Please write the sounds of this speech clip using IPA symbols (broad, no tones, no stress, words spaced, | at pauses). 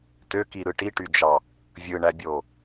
tøkiɾɯ ʈiʈyd͡ʒɑ | vʲɯɳæbʲo